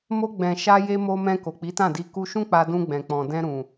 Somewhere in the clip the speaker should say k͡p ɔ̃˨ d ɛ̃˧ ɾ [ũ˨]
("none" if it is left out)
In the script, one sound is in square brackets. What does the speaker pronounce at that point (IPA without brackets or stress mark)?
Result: ũ˨